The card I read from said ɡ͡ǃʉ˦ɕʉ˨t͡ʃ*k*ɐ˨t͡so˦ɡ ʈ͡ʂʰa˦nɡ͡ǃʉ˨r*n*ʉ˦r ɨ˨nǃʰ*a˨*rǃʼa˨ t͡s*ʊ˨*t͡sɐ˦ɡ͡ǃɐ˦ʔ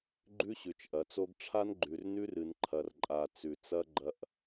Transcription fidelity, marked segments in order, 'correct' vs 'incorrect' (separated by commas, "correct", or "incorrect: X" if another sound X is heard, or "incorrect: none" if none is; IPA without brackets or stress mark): incorrect: ʔ, correct, incorrect: ɐ˨, incorrect: ʉ˨